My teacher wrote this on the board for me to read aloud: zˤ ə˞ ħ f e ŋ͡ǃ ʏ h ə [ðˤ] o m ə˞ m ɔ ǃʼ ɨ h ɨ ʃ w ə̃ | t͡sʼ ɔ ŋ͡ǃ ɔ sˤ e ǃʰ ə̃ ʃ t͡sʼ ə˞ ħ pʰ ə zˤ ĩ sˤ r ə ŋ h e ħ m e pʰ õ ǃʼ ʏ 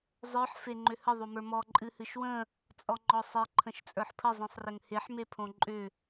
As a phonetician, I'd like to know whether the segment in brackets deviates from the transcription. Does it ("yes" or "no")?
no